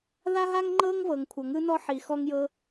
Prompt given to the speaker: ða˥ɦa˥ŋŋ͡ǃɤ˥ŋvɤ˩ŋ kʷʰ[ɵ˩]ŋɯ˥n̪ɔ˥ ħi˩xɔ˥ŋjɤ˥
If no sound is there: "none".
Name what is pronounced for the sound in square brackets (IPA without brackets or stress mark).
ɤ˩